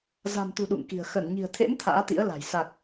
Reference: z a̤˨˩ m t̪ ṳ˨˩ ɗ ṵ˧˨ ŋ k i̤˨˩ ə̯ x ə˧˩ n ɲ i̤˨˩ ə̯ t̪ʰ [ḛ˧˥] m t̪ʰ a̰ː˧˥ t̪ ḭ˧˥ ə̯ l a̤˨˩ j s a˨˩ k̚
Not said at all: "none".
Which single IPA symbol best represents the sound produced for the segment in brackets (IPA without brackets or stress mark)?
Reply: ḛ˧˥